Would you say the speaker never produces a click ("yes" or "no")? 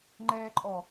no